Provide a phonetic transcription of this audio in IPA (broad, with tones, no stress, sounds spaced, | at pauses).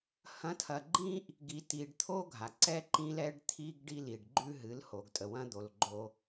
h ɐ̃˨˦ tʰ ɐ˨ ɡ͡ǃ ĩ˦ ʔ | ɡ i˨ t i˨ ɖ t̪ʰ o˦ ɡʱ a˨ ǀ ɛ˦ ǃ ĩ˦ l ɛ˦ ɖ t̪ʰ i˦ ɡ ɖ i˦ l i˨ ɖ ɡ͡ǃ ʉ˦ ɦ ɨ˨˦ l h o˨ ɡ tʼ ə˨ w ɐ̃˦ d̪ o˨ l ɡ͡ǃ o˦